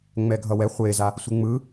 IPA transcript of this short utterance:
ŋ͡m ɛ ɡʱ ʌ w ɛ χʷ e z a | sʷ ɯ ŋ͡m ɯ

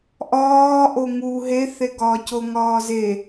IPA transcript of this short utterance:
ʔ ɒː ʔ o ŋ u ɦ e θ e ɡ ɒː c o ŋ ɒː z e

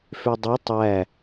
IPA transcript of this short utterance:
f ø dˤ e tˤ æ

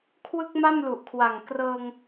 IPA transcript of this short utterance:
kʰ w ɯ˥˩ k̚ m a˥˩ m l u˨˩ ʔ kʰ w a˨˩ ŋ k r ɤː˧ ŋ

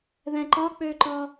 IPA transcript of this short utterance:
ð ɛ̃ ǃ ɒ k͡p ø ǃ ɒ

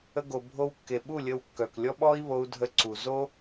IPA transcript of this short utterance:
ə˧ ɡ o˨ bʱ o˧ w kː e˨ ɓ u˦˨ lʲ ə˧ w kː œ˨ k lʲ ɔ˦ ɓ ɔ˦ i̯ β o˧ u̯ dʱ ə˧ ǀ u˨ z o˦

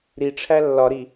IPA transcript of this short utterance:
ɾ i ʈ͡ʂʰ æ lː ɒ ɾ i

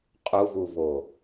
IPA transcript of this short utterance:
qʼ u v u v o

